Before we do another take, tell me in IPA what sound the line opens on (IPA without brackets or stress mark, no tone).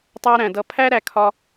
tˤ